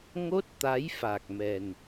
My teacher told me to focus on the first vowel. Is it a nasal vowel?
no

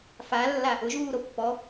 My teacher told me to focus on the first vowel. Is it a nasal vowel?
no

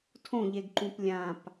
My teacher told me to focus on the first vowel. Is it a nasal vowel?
yes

